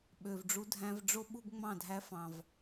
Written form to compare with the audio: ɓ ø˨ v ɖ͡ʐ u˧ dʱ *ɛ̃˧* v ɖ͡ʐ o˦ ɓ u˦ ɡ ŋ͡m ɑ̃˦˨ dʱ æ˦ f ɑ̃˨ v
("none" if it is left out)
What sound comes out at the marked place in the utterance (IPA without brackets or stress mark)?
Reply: æ̃˧